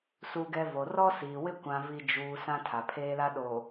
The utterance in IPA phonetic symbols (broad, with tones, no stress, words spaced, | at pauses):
su˨ɡɛ˨ vo˨rɔ˦siː˨wɪ˦ kʷã˨vi˨ d͡ʒuː˨ sã˦tʰa˨pʰeː˦la˦ ɗoː˨